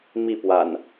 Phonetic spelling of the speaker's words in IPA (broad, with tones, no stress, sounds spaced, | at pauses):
m i˥˨ p w a̰˨˩ n